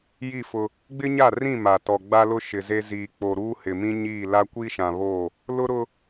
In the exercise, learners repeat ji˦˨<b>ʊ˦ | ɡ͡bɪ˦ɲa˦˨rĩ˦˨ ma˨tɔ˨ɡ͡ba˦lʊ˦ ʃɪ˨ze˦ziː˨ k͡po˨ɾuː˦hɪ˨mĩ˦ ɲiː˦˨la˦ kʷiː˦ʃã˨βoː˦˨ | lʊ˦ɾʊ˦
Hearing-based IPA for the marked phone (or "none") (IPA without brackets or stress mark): f